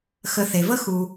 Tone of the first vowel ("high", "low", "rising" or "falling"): low